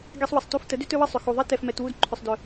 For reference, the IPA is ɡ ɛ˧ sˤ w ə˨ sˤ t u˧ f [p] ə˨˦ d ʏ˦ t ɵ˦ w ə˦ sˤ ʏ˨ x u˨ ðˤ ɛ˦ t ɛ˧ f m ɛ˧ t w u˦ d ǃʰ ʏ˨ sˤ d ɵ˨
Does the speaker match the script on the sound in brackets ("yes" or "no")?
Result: no